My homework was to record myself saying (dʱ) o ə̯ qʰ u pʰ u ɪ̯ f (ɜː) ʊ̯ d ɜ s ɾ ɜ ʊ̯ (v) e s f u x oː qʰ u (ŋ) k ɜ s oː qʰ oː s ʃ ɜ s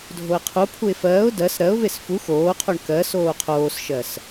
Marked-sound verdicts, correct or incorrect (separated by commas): correct, correct, correct, incorrect